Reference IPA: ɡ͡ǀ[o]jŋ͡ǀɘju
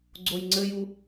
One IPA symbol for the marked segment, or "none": o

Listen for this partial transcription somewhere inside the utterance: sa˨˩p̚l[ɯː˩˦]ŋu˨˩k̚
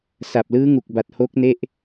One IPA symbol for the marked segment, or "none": ɯː˦˥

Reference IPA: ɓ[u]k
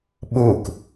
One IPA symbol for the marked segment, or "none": u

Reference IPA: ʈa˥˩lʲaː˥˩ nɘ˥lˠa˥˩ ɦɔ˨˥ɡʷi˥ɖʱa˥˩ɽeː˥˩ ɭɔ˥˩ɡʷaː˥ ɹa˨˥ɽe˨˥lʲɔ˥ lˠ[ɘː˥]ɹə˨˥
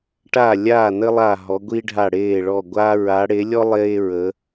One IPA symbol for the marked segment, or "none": eː˥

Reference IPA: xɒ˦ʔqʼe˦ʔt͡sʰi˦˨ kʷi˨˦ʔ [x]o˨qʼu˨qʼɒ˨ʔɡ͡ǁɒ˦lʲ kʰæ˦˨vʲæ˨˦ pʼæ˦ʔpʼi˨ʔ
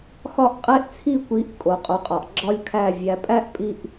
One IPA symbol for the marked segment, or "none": kʼ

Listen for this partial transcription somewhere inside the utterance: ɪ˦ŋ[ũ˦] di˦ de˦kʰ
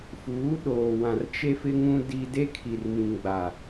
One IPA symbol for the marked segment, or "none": ũ˦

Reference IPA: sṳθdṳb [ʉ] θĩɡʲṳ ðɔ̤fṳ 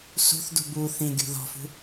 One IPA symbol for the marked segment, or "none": u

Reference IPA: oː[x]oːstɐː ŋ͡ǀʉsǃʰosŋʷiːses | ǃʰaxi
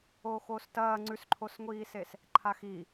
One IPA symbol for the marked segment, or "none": x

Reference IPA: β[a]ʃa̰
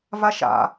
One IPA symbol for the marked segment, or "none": a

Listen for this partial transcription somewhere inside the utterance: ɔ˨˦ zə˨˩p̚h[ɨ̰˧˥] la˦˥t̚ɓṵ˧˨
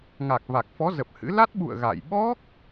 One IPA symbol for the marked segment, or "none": ɨ̰˧˥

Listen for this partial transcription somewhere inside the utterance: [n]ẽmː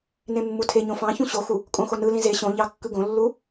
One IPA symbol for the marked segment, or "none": n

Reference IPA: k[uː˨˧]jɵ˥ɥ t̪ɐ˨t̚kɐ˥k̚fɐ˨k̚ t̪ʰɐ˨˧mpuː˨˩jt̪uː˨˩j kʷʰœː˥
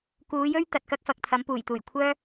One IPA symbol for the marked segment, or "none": uː˨˧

